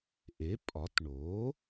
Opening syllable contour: rising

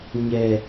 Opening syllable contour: low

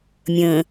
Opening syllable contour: low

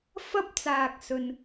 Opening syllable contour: high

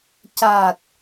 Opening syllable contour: low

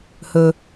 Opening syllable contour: low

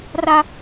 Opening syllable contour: high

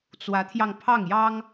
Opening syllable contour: rising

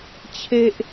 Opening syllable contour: low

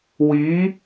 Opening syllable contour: rising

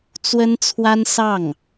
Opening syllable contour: high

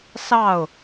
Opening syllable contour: falling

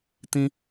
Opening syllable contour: high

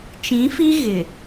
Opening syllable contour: rising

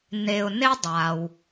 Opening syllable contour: low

